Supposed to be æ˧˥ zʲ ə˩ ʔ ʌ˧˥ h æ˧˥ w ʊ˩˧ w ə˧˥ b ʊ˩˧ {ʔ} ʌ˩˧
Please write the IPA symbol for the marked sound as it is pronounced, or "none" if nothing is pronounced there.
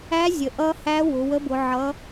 ʕ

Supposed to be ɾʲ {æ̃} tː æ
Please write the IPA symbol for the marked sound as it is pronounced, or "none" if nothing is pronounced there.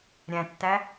æ̃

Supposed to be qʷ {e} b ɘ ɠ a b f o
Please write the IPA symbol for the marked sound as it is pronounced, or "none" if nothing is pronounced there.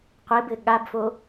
e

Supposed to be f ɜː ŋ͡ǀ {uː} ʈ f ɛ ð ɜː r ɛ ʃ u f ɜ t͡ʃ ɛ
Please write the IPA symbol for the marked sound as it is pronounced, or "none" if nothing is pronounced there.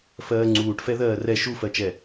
uː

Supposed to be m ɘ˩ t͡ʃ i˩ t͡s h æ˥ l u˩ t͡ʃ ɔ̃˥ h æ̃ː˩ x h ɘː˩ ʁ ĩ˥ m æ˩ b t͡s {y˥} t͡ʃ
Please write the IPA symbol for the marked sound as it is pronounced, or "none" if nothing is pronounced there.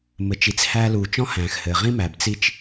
i˥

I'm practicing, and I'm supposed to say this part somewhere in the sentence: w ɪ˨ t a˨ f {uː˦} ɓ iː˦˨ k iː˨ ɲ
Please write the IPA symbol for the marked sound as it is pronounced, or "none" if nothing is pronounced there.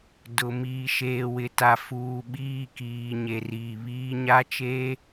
uː˨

